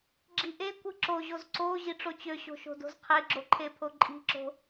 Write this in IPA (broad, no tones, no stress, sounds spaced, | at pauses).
ɡ͡ǁ i ʔ e kʷ ɯ ǁ o ʑ o z ǀ o ʑ i ʈ͡ʂ o t͡ɕ ø ɕ o̤ ʃ o̤ d o̤ z qʰ e ɡ͡ǁ o ǃʰ e pʰ o ǃʼ i̤ ǁ o̤